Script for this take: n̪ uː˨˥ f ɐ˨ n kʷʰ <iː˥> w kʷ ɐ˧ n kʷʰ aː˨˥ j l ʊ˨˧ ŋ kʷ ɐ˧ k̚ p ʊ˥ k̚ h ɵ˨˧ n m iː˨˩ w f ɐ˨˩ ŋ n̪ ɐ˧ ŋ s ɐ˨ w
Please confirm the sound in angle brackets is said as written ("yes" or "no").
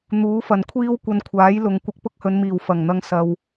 yes